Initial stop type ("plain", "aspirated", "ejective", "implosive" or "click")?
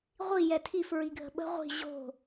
aspirated